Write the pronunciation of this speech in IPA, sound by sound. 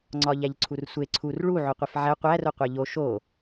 ŋ͡ǀ ɒ ʎ æ ʎ ǀʰ u r sʷ e ǀʰ u r ɭ u ʕ o qʷ e f ʕ æ qʷ æ r o qʷ æ ʎ o ʃ o

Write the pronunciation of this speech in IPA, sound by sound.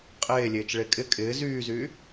qʼ eː lʲ eː t͡ʃ ɭ e kʼ ɪ kʼ ɪː z yː z yː

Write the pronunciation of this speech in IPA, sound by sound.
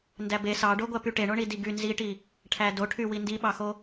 n d æ b e s ɑ ɖ o ɡʷ æ p y ʈ e ɳ o ɳ i d i ɡ y n z i ʈ i | ʈʰ æ d o ʈʰ y w i n d i ɓ ɑ x o

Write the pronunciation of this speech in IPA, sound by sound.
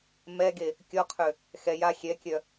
m ɛ ɡ e | kʲ ɔ qʰ ø | x ɛ j a xʲ ɛ kʲ œ

